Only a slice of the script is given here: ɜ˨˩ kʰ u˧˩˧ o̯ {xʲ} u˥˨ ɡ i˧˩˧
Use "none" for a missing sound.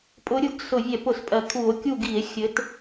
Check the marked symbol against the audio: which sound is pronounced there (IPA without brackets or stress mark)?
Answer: kʲ